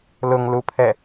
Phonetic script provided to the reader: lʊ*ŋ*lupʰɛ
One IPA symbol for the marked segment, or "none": ŋ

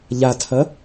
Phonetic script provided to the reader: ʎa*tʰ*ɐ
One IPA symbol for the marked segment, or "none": tʰ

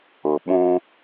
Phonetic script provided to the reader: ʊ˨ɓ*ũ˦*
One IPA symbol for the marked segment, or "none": ũ˦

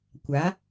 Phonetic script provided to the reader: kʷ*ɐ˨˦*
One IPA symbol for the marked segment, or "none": a˨˦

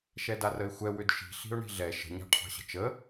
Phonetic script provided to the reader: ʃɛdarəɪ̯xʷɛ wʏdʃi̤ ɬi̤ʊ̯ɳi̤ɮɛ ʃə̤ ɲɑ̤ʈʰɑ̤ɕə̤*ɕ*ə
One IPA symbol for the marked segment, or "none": t͡ʃ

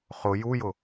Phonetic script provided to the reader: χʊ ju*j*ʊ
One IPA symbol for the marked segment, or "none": j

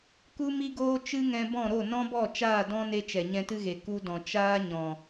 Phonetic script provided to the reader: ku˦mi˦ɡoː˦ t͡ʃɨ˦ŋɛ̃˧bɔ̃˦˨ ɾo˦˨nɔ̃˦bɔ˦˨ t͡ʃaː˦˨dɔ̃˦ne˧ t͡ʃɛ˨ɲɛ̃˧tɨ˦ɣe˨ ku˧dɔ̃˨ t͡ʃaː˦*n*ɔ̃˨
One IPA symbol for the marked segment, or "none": ɲ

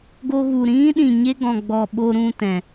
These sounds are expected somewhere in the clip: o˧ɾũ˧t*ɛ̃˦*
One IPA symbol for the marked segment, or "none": ɛ̃˨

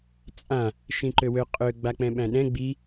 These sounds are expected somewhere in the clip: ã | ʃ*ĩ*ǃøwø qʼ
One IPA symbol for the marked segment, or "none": ĩ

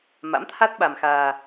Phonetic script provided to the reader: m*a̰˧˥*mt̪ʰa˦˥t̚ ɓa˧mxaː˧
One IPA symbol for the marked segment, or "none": a̰˧˥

